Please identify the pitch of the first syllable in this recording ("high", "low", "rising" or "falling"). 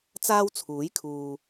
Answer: high